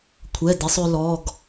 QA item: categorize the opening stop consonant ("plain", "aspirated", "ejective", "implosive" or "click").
aspirated